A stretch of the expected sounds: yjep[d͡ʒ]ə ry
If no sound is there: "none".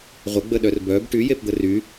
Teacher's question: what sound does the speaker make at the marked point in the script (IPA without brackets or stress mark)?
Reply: d̪